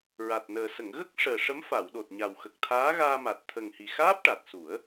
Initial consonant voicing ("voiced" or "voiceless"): voiced